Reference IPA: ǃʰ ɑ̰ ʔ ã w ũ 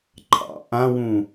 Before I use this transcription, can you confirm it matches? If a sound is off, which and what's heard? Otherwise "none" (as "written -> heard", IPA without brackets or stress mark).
none